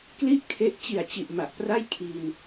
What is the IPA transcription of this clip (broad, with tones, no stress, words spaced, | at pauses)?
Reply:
kli˥˩ʔkʰe˦˥ʔ t͡ɕi˨˩a̯t͡ɕi˨˩ʔ ma˨˩ʔpra˥˩j kʰi˧n